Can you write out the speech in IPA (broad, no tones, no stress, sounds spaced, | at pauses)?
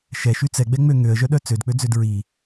ʃ ɛ ʃ y t͡s ɛ ɡ͡b ɛ ŋ͡m ø ŋ ø ə̯ ʒ œ ɗ œ t͡s ø d k͡p ø d͡z ø d ɹ i